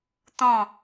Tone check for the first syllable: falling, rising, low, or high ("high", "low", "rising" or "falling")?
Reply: falling